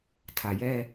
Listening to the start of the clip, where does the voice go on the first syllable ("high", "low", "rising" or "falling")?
low